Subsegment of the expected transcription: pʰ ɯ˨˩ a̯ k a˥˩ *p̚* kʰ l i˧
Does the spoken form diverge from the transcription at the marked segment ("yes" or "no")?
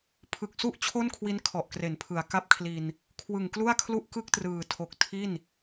no